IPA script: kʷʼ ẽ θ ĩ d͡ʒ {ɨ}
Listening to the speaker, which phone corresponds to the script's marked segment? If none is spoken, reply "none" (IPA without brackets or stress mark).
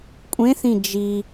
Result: i